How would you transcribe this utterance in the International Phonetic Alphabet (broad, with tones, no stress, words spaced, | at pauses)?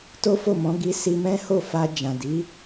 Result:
to˦fo˦˨mɔ̃˨˦ ɡi˦ si˧mɛ̃˦ho˦˨ fa˧d͡ʒã˨ di˨˦